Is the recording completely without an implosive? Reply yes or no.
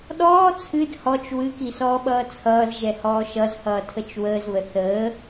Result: no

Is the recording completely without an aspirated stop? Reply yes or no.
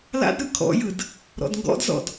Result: no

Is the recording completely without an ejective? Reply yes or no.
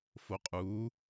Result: no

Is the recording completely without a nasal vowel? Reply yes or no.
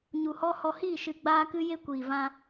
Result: no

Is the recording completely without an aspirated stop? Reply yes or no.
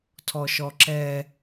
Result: no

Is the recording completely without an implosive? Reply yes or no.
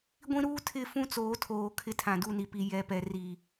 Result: yes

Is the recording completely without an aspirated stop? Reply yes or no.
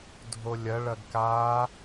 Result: yes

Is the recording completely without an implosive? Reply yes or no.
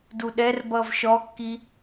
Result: no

